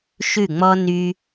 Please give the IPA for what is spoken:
ʃ ʉ˦˨ ŋ͡m ɔ˦ n y˦

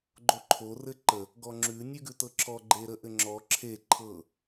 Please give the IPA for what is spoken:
ɡ͡ǃ o ǃʰ o r ɘ ǃ ə | ɡ ɔ ŋ͡ǁ ʉ nʲ ʉ ɡ ʉ t ɤ ǁʰ ɔ ɡ͡ǃ e ɾ ə ʔ ɘ ŋ͡ǁ ɔ ǁʰ e ǃʰ ɤ

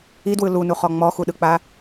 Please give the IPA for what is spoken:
i d w ɯ l u n u χ ɔ ŋ͡m ɔ x u ɗ ɯ k͡p a

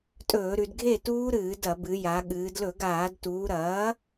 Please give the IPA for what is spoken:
tʼ ɵː˧˩˧ ɾ ʉ˩˧ d ɡʱ e˥˨ t uː˦˥ ɾ ɨː˧˩˧ d ɐ˧˩˧ b ɨ˩˧ j a˩˧ ɠ ɨː˩˧ d l ɵ˧˩˧ ɡ aː˧˩˧ d t uː˩˧ ɾ ɐː˩˥

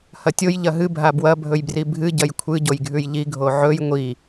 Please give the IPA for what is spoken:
h ɐ tʲ o j ʎ ɐ ɦ ɨ bʱ a b w ɐ bʱ ɵ j b r i bʱ ɨ ɟ ɐ j kʷʰ ɨ ɟ o j ɡʱ ʉ j ʎ i ɡʱ o ʕ ɵ j ŋʷ i

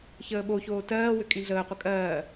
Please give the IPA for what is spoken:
ç əː ɓ o ç oː t ɜː w ʏ kʼ ĩ ɮ əː qʷ ə kʼ ɜː

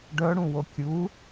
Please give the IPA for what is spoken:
ɖ œ ɽ ũ w o kʲ u

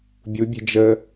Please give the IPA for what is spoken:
bʲ u bʲ ɛ̤ d͡ʒ ə

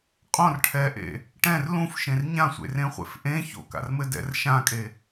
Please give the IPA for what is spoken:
qʼ õ r ʈʰ ɛ ʔ ḛ | ʈ ɛ̃ r l ũ f ʃ ẽ r ɲ ã sʷ ḛ r ẽ χʷ ḛ f ʔ ẽ ç o̰ k a̰ r m ɘ d ɛ̰ r ʃ ã kʼ e

